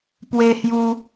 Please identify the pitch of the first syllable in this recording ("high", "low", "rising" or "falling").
high